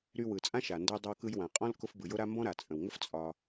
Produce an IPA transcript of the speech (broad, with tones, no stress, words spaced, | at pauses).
ɾy˧wɯ˩ t͡sʼã˥ʃa˩ ndə˧jdˤə˧wkɯ˧j wã˩qʼɔ̃˥l kʊ˧fbɯ˩ jʊ˥ɾa˥ mbɔ̃˥ɾa˩ t͡sʼə̃˩wŋə˥f t͡sʼɒ˧